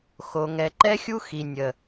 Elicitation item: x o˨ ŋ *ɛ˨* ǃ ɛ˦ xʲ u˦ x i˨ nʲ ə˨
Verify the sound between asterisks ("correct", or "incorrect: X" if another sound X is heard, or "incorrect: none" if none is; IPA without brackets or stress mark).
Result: correct